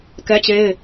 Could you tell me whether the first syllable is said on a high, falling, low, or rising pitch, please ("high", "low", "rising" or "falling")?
high